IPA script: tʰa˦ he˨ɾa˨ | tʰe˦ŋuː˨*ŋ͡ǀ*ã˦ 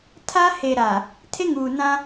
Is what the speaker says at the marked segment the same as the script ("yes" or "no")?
no